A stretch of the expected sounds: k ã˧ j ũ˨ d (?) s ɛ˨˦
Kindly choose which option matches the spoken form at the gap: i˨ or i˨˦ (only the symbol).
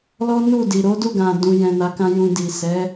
i˨